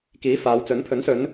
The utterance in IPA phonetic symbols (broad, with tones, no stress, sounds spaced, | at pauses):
k iː˨˥ f aː˨˧ w t͡s ɵ˨˥ n pʰ ɵ˨˥ n s ɵ˨˧ n